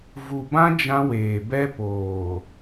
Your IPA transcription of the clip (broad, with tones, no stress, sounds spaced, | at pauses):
v u˨ b ã˦ d͡ʒ ã˦ w eː˨ b ɛ˦ p oː˨